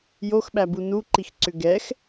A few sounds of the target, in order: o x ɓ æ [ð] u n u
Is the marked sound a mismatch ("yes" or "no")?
yes